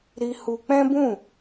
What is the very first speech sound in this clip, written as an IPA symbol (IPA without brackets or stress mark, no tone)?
ɾ